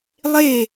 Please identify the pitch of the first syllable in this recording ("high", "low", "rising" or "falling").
falling